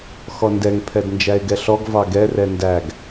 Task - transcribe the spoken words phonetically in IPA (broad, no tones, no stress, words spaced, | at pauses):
xɔndɛŋ pʰɛdnd͡ʒæɪ̯ɡɛɬɔɡ vɑɡɛ rɛndæɡ